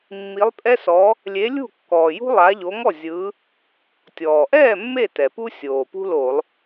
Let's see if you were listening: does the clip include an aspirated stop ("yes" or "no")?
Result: no